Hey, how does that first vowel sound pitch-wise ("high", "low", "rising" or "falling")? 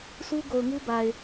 high